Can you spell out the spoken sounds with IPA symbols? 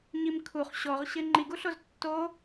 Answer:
ɲimkʰuχ ɕɔʁɕɪ ŋ͡ǃiɡuɬoz tːo

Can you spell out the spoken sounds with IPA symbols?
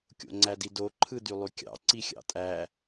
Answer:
kʲo̰ŋ͡ǀædido ǃʰɯdylˠykʲɑ̰ ǀixʲɑ̰tʼæ

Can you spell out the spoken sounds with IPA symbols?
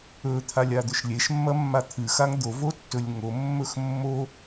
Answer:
ɵt̪ʰa lʲad̪ɵʃlʲeʃmːɐ mːat̪ʰɨxaŋ d̪ovo tːɵlʲŋomːɵx mːo

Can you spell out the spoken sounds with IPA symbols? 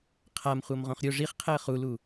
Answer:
qʰamχʷɤmʁõχ ɾʲo ʐiχqʰɛə̯ χulu

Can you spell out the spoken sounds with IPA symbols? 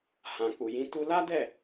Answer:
hã˨ k͡pu˨jĩ˨˦ tu˧la˦dɛ˦˨

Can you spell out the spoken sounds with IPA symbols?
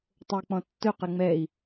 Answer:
tˤɵi̯k͡pɔ̃tːɵ qɛŋ͡mɛi̯

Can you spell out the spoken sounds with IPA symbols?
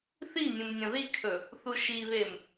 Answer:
θi nʲũmnʲɐ̃ðikʰɵ | θuʃiβem

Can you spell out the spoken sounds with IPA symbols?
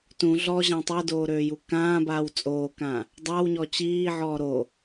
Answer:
tũ ɮɔʑã tˤɛdoːɾøːju kãːbaːw t͡sʼoːkã | dˤawɲɔ t͡ɕiːʕɔː ɾo

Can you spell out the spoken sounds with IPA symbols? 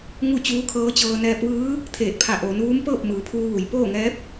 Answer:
ŋu˥˨t͡ɕuː˧˥kʰɤː˧˥t͡ɕɤː˧ nɛː˧p̚ʋɯː˧˥ | t̪ʰeː˧˩t̚pʰa˧˩ ʔoː˩˧nʋuː˧˥m pɤː˥˨p̚mɯː˩˧pʰuː˧ʋu˩j poː˥˨ŋɛː˧˥p̚

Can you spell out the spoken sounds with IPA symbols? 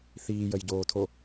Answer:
θiːjəjɟoːtʰo

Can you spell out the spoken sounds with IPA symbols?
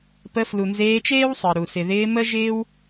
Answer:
pə˧flu˨ nzeː˧t͡ʃeː˦wsˤəː˨ ɾu˨ sɪ˨ðɪː˧ mə˦ʒɪː˦w

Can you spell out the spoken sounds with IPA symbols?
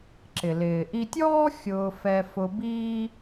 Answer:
ǁɪ˩ lɪː˩ʔi˧tʲɔː˥ xʲʊː˧ fɛ˧fʊ˧biː˥

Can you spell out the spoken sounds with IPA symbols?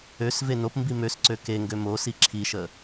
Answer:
øsve nopmbi møsǀø ke ŋɡømosi ǁʰiʃə

